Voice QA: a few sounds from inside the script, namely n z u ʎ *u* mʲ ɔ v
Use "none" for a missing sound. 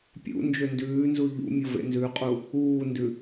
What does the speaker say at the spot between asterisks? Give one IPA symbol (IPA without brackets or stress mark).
ṵ